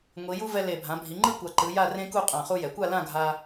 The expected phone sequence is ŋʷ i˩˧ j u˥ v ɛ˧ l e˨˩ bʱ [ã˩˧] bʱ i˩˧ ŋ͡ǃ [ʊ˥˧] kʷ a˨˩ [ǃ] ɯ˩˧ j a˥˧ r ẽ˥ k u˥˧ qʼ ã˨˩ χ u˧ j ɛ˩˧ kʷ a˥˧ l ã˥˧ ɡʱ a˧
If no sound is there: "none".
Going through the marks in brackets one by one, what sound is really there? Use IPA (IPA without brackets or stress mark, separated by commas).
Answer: ã˩˧, ɯ˥˧, ǃ